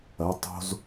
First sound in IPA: ɐ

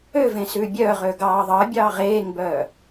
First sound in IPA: ø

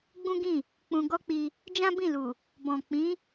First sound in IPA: ɡ͡b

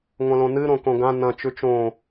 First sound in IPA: ŋʷ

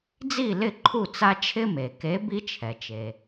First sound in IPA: d͡z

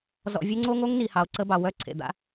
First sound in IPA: z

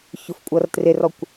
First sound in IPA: ç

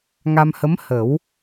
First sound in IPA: ŋ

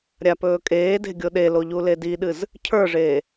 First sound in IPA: ɾʲ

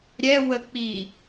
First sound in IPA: ɾʲ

